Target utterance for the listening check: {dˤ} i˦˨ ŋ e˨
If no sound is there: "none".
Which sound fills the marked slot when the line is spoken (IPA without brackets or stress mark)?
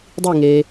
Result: dˤ